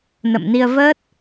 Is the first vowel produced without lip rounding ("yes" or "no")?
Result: yes